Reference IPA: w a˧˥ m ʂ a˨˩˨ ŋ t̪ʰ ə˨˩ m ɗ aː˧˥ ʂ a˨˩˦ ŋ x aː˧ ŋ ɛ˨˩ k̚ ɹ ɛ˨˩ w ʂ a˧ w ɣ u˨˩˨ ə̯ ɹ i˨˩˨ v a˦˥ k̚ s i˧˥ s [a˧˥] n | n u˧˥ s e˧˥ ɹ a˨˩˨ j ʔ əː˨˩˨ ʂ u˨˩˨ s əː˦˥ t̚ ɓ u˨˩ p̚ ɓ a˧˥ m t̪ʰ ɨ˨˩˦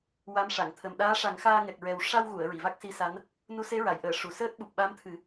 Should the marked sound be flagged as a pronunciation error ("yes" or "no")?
no